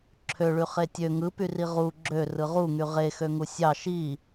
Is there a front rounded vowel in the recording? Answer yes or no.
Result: yes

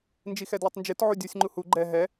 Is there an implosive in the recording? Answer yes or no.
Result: no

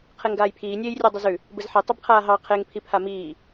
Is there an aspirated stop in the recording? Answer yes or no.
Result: yes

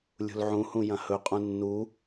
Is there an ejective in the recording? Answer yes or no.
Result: yes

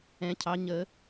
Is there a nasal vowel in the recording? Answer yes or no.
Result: yes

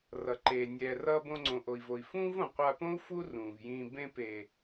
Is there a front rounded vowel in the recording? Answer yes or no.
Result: no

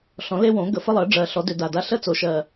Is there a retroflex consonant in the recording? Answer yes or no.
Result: yes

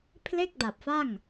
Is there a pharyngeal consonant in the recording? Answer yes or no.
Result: no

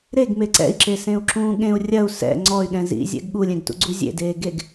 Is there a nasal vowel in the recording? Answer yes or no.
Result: yes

